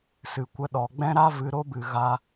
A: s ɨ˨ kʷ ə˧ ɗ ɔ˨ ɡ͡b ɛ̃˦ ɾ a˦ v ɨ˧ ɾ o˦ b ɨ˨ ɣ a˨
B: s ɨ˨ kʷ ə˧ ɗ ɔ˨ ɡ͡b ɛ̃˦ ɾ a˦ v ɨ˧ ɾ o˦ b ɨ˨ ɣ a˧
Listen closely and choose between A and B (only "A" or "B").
B